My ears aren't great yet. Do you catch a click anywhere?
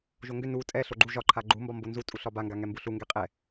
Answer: yes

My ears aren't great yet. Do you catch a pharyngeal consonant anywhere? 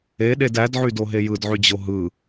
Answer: yes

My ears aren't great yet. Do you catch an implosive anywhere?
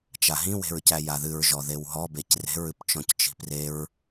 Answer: no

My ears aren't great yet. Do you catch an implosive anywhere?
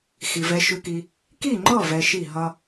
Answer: no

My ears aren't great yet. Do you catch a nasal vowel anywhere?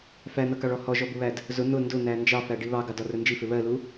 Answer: no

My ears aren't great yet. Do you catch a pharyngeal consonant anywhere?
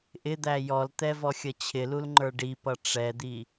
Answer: no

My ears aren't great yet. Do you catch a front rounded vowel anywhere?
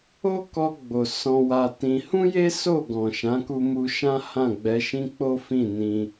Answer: no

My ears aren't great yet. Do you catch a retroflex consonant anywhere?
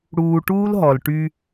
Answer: yes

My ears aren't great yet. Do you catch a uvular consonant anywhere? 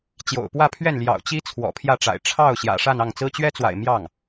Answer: no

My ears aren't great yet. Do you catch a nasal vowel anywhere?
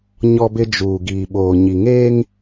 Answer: no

